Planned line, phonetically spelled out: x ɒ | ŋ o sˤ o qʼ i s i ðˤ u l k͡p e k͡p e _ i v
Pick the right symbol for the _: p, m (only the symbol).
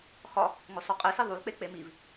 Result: m